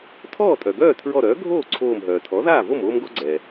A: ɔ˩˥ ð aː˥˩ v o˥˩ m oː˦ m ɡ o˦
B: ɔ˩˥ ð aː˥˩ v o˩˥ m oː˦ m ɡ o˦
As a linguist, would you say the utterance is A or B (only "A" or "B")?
A